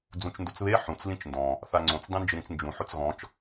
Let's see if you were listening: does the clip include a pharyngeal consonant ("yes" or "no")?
yes